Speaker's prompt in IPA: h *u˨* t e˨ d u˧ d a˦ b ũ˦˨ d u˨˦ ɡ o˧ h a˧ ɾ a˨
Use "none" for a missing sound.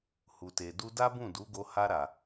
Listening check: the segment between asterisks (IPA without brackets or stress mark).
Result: u˨